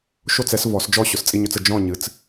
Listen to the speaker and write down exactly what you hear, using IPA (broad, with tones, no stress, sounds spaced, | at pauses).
ʃ o˥˨ t͡s ɛ˩˥ s v ɔ˨˩˦ s d͡ʒ ɔ˥˨ ɕ ʊ˩˥ s t͡sʼ i˧ ɲ ɵ˧ t͡s ə˥˨ d͡ʒ ɔ̃˥˨ ɲ ɨ˩˥ t͡s